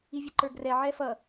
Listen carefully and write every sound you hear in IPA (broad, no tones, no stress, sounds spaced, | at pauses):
i vʲ ə ǃ ə˞ ɡ r ɛ ʕ ɛ f ʌ